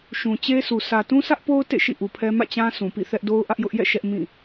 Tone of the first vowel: low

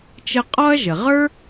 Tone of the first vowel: high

